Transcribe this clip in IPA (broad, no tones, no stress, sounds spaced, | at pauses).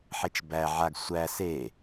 ħ e t͡ʃ b æ ʕ a ɡ sʷ æ s e